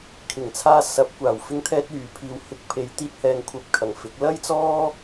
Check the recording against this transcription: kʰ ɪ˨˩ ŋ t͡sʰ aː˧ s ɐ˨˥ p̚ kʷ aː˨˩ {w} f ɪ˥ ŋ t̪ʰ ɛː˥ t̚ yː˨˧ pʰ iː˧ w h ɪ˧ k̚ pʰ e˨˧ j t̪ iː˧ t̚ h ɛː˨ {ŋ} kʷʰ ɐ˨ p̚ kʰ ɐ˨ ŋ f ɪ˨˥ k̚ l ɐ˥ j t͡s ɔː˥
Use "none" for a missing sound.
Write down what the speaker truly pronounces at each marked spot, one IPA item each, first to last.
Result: w, ŋ

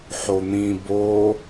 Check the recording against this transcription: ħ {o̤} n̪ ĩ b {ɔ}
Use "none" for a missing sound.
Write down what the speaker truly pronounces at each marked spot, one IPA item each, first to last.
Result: o, o

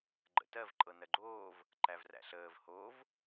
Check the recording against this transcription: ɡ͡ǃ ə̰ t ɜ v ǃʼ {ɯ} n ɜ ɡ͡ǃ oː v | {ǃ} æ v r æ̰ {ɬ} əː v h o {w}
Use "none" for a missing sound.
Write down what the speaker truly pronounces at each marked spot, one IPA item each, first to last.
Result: ɤ, ǃ, ɬ, v

